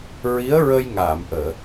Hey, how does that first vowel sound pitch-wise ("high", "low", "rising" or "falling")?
rising